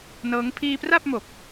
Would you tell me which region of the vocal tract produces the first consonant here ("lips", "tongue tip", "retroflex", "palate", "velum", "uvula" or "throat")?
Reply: tongue tip